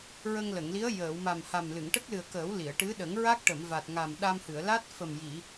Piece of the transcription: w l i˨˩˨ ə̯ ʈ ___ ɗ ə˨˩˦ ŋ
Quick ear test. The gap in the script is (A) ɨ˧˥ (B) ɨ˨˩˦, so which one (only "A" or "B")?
A